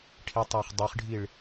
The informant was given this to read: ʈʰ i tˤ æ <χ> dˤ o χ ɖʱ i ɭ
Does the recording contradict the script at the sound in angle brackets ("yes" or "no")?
no